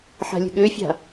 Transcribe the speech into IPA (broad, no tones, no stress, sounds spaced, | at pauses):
ħ a̤ lʲ ə̤ ɠ ø fʲ a̤